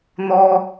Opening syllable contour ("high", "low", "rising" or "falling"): high